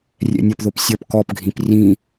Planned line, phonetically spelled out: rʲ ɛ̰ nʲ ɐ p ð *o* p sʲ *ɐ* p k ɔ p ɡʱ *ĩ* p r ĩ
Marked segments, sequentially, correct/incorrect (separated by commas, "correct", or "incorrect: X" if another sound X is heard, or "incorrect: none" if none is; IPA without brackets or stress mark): correct, correct, correct